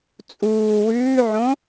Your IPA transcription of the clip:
t͡sʼuː wʉːʕõ

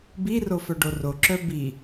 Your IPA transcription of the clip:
biro fœɖoro ǁœbi

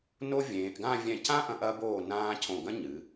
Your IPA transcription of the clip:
no˥ vʲẽː˩˧ʔ ɡã˥˧ vʲɛ̃˧˩cã˥ʔɐ̃˧ʔ ɐ˧boː˧˩ nãː˧ cʰõ˧˩ɡɐ̃˥ɲɨ˩˧

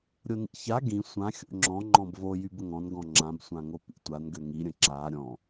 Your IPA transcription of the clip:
ɾʲonḭça ɡĩ sʷã xʲo̰ŋ͡ǁɔ̃ ŋ͡ǃɔ̃bvo jybəŋɔ̃n ɡɔ̃ŋ͡ǁãb sʷãŋopḭtʷan ɡøŋi ɾʲə̃ǁa ɾʲɔ̃

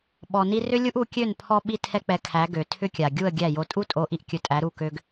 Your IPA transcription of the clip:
ɓɔ˨ni˧rʏ˦lʲu˦ʔ u˧kʲø˦˨n pʰɔ˧ɓi˧ tʰɛ˦k͡pɛ˧kʰæ˨˦ ɡø˨tʰʏ˦kʲa˨ ɡʲu˦˨ə̯ɡʲæ˦˨jo˧ tʼu˦tʼo˨˦ ʔi˧ʔkʲɵ˧ tʼæ˨˦ɾu˦˨ kø˧ɡ

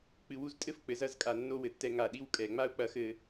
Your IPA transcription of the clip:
k͡pɨ˧˩wu˧ztʼɘ˥f k͡pɘ˧zɐ˥˧zkʼa˧˩ nːo˥˧wɘ˧˩tːɛ˧ ŋa˧˩ɗi˥wkʼɛ˧˩ ŋ͡ma˥u̯k͡pɐ˧xɘ˧

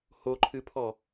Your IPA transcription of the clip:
hoǃʰɨpʰɔ

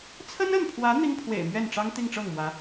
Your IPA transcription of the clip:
t͡sʰə˥nə˥˩npʰwä˧˥ n̪i˥ŋpʰwḛ˨˩ɪ̯mɥɛ˥˩nʈ͡ʂɑ˥ŋ t̪i˥˧ŋʈ͡ʂɤ˥˩ŋmwä˧˥

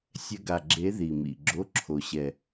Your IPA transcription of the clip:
sʲɛ˥ ɡa˦˨ ɡ͡ǁe˧˥ði˨˩mḭ˨˩ ɡ͡ǁo˧˥˧ǁʰo˨˩ ɕɛ˨˩

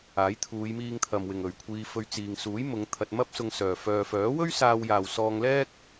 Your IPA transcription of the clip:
aː˨˥jt̪ʰuː˨˧jmiː˧ŋt̪ʰɐ˨m wɪ˨ŋ ɵ˨ɥkʷʰiː˧fɵ˧ɥ t͡siː˨ŋsuː˨˥jmʊ˨˧ŋ t̪ʰɐ˧t̚mɐ˥p̚sʊ˧ŋsœː˨ fœː˨fœː˨˥wɵ˥ɥ saː˧wjaː˨w sɔː˧ŋlɛː˥k̚

